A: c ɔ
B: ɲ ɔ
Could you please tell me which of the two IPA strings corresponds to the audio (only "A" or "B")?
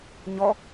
B